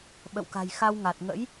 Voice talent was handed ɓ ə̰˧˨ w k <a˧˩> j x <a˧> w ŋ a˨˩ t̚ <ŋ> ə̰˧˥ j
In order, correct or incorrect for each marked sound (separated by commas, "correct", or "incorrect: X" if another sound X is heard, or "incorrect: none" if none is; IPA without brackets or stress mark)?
incorrect: a̤˨˩, correct, correct